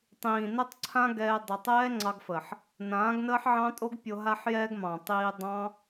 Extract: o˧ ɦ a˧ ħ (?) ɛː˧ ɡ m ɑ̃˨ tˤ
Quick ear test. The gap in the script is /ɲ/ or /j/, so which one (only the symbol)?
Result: j